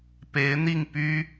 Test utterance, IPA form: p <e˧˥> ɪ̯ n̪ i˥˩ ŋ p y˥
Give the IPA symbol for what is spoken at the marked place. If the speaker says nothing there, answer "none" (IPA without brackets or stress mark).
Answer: e˧˥